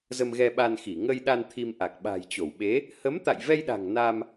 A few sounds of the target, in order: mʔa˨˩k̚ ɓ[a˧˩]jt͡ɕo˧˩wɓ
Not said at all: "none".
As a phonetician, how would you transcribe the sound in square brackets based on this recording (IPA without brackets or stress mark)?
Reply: a̤˨˩